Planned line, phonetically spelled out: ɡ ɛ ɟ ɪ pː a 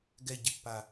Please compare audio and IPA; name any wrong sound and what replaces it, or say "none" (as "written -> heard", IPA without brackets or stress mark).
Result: none